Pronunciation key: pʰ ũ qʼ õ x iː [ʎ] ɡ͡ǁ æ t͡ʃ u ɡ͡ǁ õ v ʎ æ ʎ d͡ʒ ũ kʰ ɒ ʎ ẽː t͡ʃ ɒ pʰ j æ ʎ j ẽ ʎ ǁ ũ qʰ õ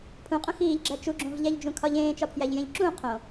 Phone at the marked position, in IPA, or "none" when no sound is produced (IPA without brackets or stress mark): ʎ